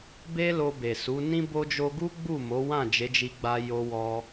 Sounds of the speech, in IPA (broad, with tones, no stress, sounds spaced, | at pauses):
b e˧ l o˧ b e˨ s u˨˦ n ĩ˦ b o˦ d͡ʒ o˦ ɡ u˦ ɡ͡b u˦˨ m o˨˦ w ã˦˨ d͡ʒ e˨˦ d͡ʒ i˧ ɡ͡b a˧ j o˧ w ɔ˧